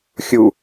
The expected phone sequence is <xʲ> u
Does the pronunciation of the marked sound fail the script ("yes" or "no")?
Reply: no